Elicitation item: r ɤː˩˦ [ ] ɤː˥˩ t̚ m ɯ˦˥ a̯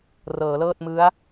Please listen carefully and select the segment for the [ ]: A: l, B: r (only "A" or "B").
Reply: A